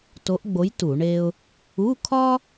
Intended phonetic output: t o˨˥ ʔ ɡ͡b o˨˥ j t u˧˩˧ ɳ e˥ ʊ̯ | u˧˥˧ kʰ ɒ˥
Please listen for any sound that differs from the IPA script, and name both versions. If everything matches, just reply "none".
none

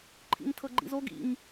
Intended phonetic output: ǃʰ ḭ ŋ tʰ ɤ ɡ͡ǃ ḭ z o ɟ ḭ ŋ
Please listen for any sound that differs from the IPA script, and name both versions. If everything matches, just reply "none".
ɟ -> ɡ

